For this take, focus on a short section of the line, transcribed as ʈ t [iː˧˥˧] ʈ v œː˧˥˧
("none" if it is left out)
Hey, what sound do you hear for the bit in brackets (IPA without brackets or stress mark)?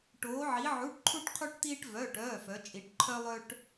iː˥